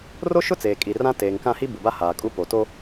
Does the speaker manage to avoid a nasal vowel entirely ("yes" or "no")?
no